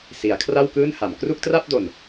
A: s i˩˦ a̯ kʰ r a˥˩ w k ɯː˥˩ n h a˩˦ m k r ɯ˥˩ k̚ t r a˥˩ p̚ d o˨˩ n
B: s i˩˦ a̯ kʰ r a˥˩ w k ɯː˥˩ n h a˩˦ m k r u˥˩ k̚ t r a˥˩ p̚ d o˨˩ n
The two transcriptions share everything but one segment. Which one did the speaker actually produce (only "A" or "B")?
B